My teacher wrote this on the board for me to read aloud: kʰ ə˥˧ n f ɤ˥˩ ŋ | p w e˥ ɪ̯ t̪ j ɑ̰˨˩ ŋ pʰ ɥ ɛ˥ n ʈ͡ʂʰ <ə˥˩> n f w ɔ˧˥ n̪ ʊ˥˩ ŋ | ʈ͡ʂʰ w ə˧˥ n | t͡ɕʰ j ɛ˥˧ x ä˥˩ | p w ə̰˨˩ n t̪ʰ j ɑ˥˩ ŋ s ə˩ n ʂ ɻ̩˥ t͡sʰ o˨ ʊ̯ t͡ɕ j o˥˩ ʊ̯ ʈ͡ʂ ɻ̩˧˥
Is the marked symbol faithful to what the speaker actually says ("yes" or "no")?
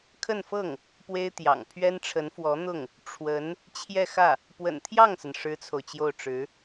no